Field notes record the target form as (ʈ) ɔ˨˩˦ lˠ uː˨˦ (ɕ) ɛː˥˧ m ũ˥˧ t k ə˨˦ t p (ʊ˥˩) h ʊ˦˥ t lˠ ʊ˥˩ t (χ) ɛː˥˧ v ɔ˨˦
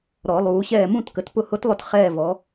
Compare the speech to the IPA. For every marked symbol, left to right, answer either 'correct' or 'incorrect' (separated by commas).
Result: incorrect, correct, correct, correct